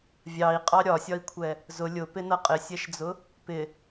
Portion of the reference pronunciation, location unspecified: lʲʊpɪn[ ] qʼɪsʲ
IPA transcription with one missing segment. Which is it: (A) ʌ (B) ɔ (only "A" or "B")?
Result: A